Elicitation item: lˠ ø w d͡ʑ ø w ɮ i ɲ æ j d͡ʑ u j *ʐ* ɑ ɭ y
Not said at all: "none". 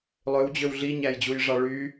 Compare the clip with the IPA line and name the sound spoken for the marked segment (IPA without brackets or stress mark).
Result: ʐ